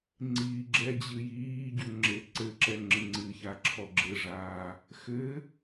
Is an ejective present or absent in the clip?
absent